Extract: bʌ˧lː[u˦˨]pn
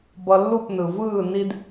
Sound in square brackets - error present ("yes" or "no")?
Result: no